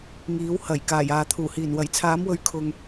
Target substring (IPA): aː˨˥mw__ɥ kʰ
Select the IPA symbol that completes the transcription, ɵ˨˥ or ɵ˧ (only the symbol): ɵ˨˥